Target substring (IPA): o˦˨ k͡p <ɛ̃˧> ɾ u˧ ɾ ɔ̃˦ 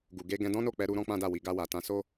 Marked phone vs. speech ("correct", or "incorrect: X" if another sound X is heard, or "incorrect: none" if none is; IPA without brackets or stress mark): incorrect: ɛ˧